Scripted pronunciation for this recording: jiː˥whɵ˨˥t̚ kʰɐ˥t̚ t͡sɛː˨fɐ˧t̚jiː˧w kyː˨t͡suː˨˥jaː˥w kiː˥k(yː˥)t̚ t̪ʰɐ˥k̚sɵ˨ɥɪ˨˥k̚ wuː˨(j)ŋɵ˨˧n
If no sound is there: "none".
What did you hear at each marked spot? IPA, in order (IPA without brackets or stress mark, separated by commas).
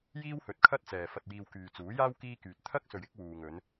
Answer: yː˧, none